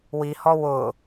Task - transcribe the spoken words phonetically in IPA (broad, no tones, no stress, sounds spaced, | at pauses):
w i h ɔ w ʊ